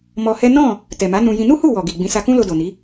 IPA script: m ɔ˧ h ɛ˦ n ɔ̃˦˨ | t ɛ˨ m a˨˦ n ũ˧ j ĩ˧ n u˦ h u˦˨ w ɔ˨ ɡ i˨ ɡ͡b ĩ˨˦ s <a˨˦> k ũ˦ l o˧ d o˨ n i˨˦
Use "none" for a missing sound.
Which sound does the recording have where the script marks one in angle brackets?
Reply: a˧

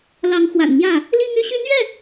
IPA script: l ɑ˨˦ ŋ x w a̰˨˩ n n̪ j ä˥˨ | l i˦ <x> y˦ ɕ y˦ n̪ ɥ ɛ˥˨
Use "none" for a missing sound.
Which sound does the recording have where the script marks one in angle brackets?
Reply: ŋ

